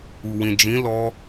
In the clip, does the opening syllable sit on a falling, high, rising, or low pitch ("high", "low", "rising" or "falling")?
low